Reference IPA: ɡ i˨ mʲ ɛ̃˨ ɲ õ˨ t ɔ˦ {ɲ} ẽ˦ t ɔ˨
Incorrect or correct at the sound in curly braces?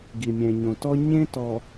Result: correct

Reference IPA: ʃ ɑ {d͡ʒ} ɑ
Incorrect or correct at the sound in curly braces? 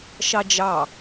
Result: correct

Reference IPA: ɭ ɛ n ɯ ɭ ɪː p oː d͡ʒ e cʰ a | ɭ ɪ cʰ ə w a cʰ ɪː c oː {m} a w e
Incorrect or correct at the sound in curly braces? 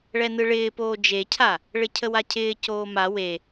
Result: correct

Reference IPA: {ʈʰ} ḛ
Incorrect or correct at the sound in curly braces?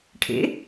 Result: correct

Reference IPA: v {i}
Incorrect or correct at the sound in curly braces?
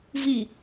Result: correct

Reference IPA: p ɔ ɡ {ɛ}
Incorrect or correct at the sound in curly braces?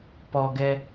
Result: correct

